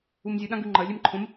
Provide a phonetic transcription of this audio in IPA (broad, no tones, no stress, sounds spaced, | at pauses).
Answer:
u m zʲ ɨ ɗ ã ɡ ʉ ŋ͡ǃ ɐ lʲ e m ǃʰ õ m